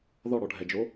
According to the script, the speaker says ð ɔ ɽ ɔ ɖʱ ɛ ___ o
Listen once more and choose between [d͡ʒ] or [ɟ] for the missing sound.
d͡ʒ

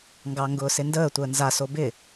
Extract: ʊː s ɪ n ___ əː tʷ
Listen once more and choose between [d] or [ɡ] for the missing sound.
d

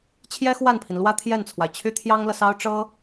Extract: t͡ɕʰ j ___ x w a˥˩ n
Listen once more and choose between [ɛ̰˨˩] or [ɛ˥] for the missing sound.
ɛ˥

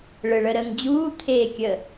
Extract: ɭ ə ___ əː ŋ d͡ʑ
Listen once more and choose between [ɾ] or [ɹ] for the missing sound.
ɾ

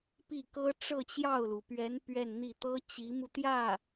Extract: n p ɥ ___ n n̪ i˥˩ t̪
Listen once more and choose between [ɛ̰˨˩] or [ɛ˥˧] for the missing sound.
ɛ˥˧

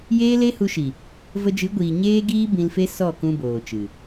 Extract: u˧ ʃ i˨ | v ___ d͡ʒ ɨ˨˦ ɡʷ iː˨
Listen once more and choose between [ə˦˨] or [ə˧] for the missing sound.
ə˧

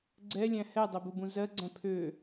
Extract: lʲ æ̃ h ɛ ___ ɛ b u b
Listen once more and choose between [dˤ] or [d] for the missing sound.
dˤ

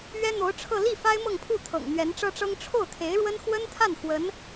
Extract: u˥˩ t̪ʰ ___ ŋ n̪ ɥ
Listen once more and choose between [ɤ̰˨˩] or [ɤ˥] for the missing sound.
ɤ̰˨˩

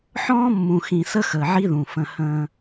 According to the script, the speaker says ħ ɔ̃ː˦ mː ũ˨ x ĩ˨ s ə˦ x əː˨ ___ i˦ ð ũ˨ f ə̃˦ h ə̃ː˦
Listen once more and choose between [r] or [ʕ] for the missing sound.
ʕ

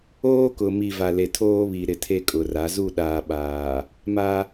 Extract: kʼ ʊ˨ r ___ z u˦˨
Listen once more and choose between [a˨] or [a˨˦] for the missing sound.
a˨˦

